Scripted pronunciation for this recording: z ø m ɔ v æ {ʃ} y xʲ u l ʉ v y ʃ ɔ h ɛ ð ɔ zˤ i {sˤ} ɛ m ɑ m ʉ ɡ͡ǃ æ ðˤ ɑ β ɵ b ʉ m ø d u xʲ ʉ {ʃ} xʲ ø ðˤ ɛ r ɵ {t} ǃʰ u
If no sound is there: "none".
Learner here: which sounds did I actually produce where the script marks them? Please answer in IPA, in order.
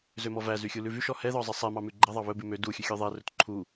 z, sˤ, none, t

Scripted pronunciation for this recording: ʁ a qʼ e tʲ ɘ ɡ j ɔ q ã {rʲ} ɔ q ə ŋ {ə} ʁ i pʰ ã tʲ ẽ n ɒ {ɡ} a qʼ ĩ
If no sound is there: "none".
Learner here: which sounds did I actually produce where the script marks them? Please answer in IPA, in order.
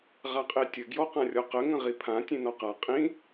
rʲ, ə̃, q

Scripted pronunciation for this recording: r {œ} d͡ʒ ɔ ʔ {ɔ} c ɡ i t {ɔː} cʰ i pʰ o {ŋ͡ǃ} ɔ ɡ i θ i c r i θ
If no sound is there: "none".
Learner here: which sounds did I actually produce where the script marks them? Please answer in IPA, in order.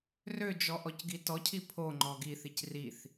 ø, ɔ, ɔ, ŋ͡ǃ

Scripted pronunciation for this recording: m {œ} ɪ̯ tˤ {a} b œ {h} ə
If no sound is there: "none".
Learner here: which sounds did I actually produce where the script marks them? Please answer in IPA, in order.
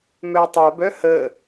œ, a, h

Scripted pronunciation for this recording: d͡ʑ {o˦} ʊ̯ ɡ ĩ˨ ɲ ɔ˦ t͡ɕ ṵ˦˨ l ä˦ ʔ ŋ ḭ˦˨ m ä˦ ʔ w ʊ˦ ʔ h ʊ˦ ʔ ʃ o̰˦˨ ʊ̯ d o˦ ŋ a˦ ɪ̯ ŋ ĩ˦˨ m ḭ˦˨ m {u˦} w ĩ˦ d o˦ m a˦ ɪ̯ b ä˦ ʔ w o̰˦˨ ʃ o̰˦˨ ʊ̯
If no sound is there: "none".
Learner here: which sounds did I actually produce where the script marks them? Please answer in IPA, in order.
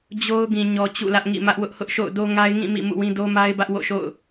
o˦, ṵ˦˨

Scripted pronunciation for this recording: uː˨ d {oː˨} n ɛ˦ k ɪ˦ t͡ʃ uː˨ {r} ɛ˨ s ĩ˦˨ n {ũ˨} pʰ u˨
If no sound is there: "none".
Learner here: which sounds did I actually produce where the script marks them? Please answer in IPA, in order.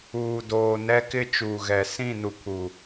oː˨, ɣ, u˨

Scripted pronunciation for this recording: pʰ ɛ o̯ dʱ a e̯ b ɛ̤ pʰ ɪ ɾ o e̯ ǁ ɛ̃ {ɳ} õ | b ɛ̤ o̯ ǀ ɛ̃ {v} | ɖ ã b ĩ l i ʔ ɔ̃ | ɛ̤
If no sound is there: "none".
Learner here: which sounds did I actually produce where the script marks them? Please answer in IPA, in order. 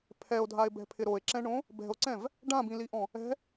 ɳ, v

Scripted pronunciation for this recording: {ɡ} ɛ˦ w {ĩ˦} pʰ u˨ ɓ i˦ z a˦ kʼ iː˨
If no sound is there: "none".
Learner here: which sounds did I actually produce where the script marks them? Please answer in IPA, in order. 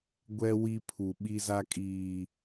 ɡʷ, i˦

